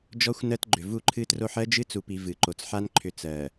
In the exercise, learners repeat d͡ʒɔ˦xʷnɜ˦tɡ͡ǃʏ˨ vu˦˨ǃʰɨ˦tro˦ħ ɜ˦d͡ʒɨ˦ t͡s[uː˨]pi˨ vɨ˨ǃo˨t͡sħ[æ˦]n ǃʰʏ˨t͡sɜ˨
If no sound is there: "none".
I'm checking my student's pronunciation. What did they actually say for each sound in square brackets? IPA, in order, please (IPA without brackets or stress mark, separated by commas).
u˨, a˦